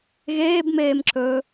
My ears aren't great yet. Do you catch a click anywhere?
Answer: yes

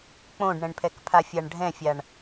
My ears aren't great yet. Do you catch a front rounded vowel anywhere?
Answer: no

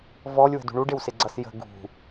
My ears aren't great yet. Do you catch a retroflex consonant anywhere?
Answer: yes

